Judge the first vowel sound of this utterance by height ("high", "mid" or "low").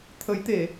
mid